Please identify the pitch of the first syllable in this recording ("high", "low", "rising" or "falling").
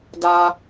low